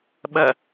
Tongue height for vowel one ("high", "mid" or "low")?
low